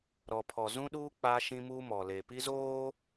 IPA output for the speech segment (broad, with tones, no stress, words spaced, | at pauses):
ɾɔ˨pʰɔ˨ zũ˦ɗuː˦ k͡paː˦ʃĩ˦muː˦ mɔ˨le˨pi˦zoː˦